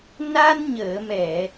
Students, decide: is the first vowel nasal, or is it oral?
oral